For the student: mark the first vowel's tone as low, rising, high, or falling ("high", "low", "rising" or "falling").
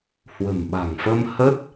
low